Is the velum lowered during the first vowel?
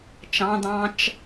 yes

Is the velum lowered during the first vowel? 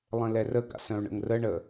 yes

